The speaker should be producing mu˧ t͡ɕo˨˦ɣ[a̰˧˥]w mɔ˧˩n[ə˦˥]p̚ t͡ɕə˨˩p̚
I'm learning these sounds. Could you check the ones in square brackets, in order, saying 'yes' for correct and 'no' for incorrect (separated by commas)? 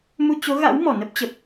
yes, yes